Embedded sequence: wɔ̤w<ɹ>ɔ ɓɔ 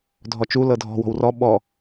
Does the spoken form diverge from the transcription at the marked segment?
yes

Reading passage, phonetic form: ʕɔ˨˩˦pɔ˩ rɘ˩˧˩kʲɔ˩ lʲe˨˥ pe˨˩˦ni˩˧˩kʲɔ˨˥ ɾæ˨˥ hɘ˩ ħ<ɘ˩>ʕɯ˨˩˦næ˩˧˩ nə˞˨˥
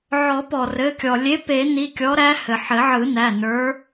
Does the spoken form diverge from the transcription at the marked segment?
yes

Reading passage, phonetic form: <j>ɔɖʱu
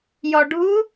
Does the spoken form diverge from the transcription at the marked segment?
no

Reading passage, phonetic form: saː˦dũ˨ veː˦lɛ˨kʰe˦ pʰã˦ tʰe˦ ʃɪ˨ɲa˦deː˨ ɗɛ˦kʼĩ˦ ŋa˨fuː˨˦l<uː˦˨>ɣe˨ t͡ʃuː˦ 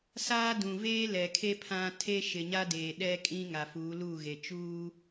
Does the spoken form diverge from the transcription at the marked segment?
no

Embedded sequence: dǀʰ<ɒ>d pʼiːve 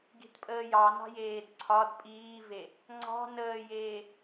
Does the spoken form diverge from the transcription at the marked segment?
no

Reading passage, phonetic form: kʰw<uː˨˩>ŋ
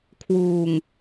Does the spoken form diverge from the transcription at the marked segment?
no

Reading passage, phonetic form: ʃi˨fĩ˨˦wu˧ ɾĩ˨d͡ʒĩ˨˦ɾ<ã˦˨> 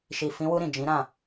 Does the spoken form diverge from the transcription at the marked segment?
no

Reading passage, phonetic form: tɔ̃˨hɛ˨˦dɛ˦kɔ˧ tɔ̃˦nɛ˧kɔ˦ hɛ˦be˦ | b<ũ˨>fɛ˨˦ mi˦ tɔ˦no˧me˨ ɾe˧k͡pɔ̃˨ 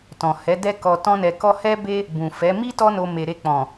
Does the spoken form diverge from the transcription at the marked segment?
no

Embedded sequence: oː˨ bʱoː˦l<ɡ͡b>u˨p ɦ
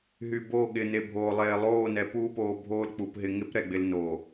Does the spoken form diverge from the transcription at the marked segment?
yes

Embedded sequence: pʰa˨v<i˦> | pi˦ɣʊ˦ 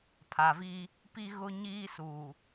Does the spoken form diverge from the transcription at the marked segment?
no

